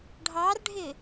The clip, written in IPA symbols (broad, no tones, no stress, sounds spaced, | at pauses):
ɖʱ ɑ r ɖʱ ɪ